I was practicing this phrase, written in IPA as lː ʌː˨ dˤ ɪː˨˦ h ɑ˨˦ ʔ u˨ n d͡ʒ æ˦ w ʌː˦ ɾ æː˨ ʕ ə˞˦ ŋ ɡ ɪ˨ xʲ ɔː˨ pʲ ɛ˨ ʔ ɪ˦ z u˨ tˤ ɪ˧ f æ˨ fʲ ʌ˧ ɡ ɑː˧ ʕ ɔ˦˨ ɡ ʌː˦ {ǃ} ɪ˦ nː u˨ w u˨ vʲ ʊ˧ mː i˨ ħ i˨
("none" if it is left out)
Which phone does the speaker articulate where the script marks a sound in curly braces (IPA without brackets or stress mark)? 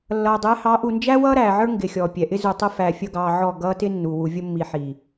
t